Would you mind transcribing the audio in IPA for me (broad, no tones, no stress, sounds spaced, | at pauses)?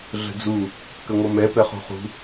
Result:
ɮ ə̤ d͡z u | k ə ŋʷ ʌ m ɛ p ɛ χ ṳ χ ṳ